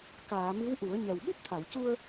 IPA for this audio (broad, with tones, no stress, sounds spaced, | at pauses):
k aː˨˩˨ m ɨ˧˥ w ʔ u˨˩˦ ə̯ ɲ ɛ˨˩ w ɓ u˦˥ p̚ t̪ʰ a˨˩˨ w c u˧ ə̯